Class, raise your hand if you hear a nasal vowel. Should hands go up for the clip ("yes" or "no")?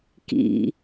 no